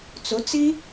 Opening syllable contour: rising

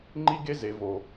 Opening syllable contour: high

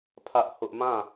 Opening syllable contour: high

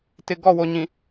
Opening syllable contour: low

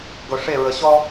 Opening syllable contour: low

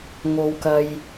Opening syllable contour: low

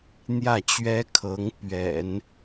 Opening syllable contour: falling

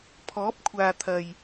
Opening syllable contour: rising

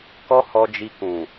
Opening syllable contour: high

